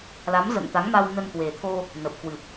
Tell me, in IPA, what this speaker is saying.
la˨˦mzə̰˧˨nt̪a˨˦ŋ ma˧w nə˧nkwe˨˩t̪ʰo˧ | nə˨˩p̚kwɨ˨˩p̚

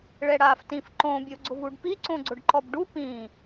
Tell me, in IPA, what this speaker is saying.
ɭɛɽaːftĩf ǃõbʲo ɡ͡ǀʊvuɖpi ǀõɡ͡ǀʊɖǃɔbɖu pĩ

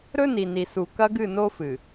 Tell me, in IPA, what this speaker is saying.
ɾɵ˦ ni˨ni˨ su˨kɐ˦ɡɨ˦˨ no˦fɨ˨

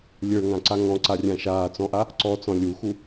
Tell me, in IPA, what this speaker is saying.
lʲə˞ŋãǀa ŋɔ̃ǀarʲã ʃaːt͡sɔ̃ʔa | ǀɔt͡sɔ̃ lʲuxu

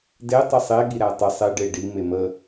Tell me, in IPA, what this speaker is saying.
de tˤəsˤe ɠiɾætˤə sˤe ɖe ɖi memə

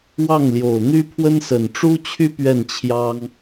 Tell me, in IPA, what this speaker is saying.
wɑ˥˩ŋljo˨˩ʊ̯n̪y˥pʰwə˥n sə˨˩nʈ͡ʂu˥t͡ɕʰy˥ pɥɛ˥˩nt͡ɕʰjɑ˥ŋ

